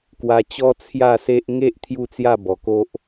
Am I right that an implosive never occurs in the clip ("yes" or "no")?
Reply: yes